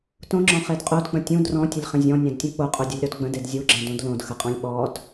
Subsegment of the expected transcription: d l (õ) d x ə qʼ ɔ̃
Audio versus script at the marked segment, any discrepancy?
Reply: no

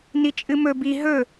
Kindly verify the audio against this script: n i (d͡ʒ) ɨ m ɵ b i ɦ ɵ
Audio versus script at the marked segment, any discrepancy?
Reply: yes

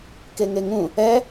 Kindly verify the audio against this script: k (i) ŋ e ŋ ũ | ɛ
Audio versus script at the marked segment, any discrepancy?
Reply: yes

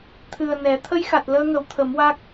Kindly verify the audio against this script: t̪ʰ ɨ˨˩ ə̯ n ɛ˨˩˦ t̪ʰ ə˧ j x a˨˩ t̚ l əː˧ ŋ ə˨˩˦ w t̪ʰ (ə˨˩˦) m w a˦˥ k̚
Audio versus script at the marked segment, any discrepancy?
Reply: no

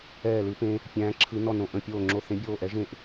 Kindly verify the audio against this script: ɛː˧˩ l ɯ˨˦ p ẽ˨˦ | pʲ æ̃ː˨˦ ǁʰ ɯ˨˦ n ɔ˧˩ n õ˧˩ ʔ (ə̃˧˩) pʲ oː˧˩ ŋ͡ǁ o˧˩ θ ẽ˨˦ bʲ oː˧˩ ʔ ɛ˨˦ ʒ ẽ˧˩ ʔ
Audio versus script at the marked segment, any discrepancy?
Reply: no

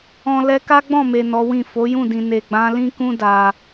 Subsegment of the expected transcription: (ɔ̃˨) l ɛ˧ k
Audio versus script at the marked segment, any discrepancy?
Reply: no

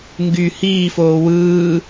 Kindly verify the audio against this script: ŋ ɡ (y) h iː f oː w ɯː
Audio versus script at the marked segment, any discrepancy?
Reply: no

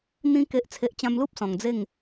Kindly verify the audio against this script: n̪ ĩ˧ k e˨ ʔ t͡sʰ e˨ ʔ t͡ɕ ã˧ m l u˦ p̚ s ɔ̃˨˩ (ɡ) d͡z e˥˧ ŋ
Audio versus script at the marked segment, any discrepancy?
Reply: yes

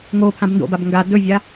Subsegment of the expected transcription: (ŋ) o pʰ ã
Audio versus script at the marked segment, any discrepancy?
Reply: no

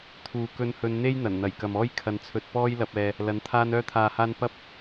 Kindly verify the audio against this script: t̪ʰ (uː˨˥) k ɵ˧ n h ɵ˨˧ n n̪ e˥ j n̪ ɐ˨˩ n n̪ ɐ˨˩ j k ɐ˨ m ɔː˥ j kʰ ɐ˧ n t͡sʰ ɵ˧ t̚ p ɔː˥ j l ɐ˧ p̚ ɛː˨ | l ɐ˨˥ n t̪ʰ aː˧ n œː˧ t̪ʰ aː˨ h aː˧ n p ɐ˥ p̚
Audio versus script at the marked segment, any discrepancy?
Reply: yes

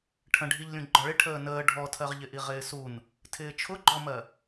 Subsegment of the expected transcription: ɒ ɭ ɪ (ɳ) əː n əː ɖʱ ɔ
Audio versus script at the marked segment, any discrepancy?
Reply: yes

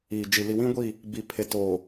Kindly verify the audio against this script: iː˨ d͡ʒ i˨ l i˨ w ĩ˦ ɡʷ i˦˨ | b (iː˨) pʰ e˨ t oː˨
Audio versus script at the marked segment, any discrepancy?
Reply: yes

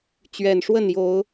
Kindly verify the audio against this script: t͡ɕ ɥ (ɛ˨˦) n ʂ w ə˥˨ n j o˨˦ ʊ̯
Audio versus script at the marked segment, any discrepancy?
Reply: yes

